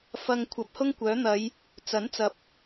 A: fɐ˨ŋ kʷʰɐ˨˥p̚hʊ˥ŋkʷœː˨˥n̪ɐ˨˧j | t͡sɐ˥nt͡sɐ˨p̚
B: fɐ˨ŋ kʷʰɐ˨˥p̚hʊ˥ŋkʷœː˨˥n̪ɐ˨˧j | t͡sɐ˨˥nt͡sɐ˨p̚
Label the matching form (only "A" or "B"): B